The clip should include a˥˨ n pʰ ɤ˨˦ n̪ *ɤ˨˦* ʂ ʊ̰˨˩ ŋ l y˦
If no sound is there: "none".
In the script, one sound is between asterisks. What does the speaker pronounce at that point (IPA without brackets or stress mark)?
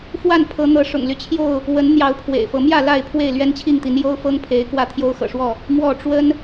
ɤ˨˦